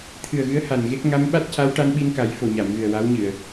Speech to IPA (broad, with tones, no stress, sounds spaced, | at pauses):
t̪ʰ ɨ˨˩ ə̯ ɣ ɨ˧˥ ə̯ h a˨˩ n ɣ e˦˥ k̚ ŋ a˧˥ m ɓ a˦˥ t̚ c a˧˥ w ʈ a˧ n ɓ i˧ n k a˨˩˦ j f o˨˩ ɲ a˨˩˨ m ɣ ɨ˨˩ ə̯ w a˧˥ w ɲ ɨ˨˩˨ ə̯